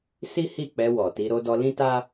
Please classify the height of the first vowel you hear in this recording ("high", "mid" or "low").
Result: high